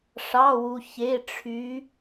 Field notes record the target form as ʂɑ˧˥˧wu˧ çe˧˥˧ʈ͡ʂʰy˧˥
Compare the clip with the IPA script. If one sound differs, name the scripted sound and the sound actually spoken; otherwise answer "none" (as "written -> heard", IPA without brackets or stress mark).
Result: none